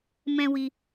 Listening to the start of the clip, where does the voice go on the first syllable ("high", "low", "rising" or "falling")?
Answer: high